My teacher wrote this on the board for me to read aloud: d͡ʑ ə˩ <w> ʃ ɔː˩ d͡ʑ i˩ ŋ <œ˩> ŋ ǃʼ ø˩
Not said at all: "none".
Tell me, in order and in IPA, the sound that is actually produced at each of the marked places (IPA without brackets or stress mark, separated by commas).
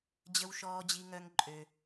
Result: w, œ˩